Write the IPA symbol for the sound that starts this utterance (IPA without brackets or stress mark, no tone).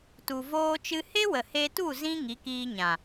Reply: t